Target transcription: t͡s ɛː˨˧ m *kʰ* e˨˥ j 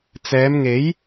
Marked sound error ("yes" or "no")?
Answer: yes